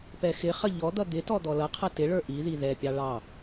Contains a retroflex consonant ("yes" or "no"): yes